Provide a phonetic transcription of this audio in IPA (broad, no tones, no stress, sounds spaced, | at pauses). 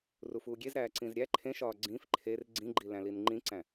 r u f uː ɡʲ e z ɾ æː ǀ ĩ z ɾʲ æ ǃʰ ẽ ʃ ɒː ɡ͡ǀ ĩ f ǃʰ e r ɡ͡ǀ ĩ ɡ͡ǃ i l æ̃ l i n ŋ͡ǃ ĩ ǀ æ̃